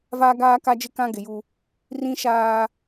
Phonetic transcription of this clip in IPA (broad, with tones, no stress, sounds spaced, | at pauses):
v aː˦ ɡ aː˦ k a˦ d͡ʒ ɪ˦ k ã˦ ɡ ɪ˨ j u˦ | r ĩ˦ ʃ aː˦